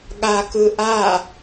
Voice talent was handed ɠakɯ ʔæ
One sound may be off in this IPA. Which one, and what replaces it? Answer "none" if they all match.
æ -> a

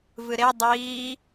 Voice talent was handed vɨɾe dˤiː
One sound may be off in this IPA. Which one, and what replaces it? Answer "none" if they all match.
none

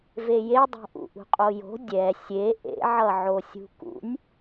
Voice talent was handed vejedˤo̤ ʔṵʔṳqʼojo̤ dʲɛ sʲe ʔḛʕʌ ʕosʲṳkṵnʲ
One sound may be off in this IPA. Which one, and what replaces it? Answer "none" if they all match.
none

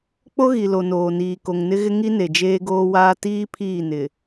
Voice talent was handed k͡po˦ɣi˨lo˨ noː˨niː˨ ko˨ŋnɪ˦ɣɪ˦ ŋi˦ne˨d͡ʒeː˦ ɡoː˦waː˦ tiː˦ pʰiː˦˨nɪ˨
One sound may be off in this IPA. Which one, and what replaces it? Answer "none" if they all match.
none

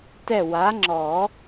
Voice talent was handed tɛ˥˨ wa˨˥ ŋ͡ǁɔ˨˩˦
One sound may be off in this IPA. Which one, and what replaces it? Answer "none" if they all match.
none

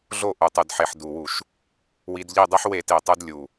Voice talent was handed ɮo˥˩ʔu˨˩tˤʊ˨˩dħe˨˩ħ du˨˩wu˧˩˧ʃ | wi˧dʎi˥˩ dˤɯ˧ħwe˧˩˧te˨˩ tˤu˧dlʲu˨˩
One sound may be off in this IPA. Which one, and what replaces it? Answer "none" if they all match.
ʊ˨˩ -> u˨˩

